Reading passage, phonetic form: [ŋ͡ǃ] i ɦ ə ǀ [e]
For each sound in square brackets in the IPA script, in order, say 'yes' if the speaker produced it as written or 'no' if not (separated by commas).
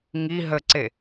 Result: no, yes